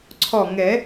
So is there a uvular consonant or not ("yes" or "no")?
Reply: no